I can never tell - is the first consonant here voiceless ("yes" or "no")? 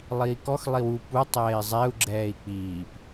no